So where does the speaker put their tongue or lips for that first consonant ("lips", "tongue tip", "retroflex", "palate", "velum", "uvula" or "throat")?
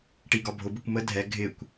retroflex